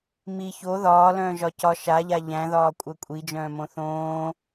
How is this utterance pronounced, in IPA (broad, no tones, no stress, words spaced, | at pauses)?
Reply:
mi ço ðɒːlœ̃ːʒɒ cɒ ʃaʎa ʎæ̃ðɒːkʷʼɜ kʷʼid͡ʒœ̃ːmõ θõː